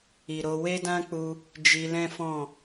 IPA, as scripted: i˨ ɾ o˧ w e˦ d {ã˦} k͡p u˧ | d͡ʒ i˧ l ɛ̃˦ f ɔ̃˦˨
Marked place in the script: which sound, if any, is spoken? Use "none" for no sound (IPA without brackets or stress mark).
ã˦